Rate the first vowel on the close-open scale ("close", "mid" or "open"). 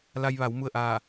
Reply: open